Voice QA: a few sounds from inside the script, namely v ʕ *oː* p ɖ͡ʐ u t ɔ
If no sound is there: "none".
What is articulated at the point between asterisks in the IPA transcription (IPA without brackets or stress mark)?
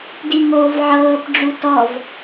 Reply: ɤː